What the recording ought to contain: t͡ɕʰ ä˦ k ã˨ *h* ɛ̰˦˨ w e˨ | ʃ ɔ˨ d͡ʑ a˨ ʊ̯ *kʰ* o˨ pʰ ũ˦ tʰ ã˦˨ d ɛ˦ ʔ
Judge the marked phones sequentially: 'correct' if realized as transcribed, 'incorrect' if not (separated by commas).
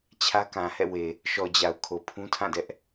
correct, correct